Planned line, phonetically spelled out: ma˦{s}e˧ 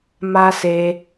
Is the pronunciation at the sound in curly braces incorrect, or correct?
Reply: correct